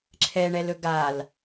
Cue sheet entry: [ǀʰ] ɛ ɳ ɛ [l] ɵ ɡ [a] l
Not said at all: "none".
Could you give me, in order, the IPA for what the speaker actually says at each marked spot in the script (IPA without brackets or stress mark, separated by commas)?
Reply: ǁʰ, l, a